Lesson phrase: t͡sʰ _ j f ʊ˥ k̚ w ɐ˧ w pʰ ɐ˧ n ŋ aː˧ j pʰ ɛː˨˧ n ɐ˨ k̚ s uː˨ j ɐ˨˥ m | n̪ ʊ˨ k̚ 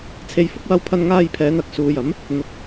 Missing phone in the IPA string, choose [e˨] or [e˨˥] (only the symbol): e˨